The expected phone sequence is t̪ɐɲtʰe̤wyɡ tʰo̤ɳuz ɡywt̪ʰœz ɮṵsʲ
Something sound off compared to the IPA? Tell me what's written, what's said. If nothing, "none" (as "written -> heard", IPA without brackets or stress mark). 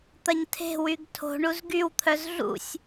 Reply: none